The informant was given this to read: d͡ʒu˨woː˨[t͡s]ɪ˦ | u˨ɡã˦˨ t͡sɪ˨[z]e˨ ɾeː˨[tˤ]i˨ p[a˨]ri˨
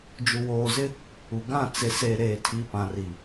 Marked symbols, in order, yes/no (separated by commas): no, no, no, no